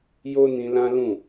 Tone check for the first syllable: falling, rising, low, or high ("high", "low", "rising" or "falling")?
high